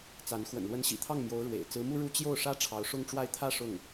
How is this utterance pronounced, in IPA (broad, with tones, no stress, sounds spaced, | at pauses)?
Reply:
t͡s a˧˥ n x w ə̰˨˩ n l w ə˧˥ n ɕ ḭ˨˩ t̪ʰ ɑ˥˩ ŋ m j o˧˥ ʊ̯ ɻ w ḛ˨˩ ɪ̯ t͡s ɹ̩˧˥ m u˥ ɻ u˥ t͡ɕ j o˥˩ ʊ̯ ʂ ä˥ ʈ͡ʂʰ ɑ˧˥ ʊ̯ ʂ ʊ˥ ŋ ʈ͡ʂ w a˥˧ ɪ̯ t̪ʰ ä˥˧ ʂ ʊ˥˩ ŋ